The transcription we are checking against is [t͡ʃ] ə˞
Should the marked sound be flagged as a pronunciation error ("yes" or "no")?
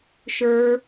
yes